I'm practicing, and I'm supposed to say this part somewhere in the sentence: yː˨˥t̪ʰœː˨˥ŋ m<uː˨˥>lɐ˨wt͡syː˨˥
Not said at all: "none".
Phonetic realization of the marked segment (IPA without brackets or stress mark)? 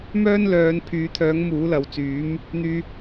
uː˨˥